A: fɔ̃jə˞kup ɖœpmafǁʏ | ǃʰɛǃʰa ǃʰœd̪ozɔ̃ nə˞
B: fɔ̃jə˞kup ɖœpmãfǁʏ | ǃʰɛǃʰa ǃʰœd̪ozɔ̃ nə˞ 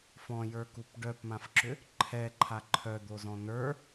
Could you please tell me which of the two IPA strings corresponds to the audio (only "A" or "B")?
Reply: B